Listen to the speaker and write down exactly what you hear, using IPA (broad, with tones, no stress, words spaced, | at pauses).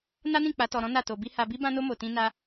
na˦nĩ˦˨ k͡pa˨˦tɔ˧ɾɔ̃˦ na˦˨to˧bi˦ ha˧bi˦ bã˦no˦ mo˧tĩ˦ na˦